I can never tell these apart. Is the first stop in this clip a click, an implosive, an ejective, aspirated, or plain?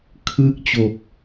aspirated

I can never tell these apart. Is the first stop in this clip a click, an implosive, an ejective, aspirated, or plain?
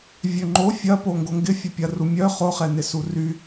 click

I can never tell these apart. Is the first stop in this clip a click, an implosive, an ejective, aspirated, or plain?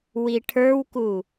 aspirated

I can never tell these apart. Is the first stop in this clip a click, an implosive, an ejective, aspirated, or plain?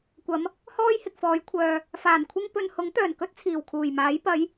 plain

